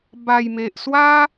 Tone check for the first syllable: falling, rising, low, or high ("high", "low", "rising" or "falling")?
low